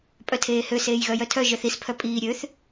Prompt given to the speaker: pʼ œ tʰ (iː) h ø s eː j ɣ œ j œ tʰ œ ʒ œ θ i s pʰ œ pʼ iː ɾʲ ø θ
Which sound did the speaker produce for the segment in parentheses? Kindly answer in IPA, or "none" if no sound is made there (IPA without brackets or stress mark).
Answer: eː